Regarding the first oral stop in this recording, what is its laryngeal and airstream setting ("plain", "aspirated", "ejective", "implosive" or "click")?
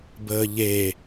plain